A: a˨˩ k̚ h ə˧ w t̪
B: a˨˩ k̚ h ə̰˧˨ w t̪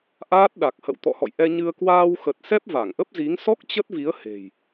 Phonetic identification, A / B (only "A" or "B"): B